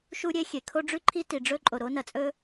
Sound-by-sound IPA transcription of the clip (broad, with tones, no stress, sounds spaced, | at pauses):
ʃ u˥ ɾʲ e˥ xʲ e˩ kʰ o˥ ɖ͡ʐ ʉ˥ ǃʰ i˥ t i˩ ɖ͡ʐ ɵ˥ ǃʼ o˩ ɾ o˥ n ɐ˩ t͡sʼ ɵ˥